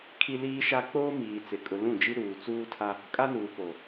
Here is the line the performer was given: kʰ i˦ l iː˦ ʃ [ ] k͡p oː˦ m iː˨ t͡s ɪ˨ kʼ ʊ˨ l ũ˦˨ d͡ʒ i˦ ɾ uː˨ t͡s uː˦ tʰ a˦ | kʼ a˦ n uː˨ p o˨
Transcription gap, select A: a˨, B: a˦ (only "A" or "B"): B